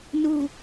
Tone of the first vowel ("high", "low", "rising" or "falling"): low